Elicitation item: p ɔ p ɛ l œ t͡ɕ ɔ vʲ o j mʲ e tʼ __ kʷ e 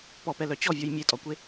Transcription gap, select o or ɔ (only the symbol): ɔ